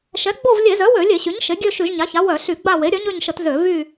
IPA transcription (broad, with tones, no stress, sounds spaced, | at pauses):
ʃ ɛ˩˥ ɡ͡b o˦˨ v lʲ e˧˩˧ z œ˩˥ w ø˧˩˧ lʲ e˧˩˧ ɕ y˩˥ ɲ ʃ e˩˥ ɡʲ ø˦˨ ʃ y˧˩˧ ʒ ɲ a˩˥ ç a˩˥ w œ˧˩˧ ɬ y˧˩˧ ɡ͡b a˦˨ w e˩˥ ɾʲ œ˩˥ ɲ ø˦˨ ɲ ʃ ə˧˩˧ t z ø˧˩˧ v y˦˨